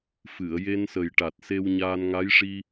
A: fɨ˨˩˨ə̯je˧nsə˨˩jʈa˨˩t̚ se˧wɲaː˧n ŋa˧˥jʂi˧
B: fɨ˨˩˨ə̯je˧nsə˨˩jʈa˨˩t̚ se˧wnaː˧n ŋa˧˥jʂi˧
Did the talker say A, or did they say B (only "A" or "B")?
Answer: A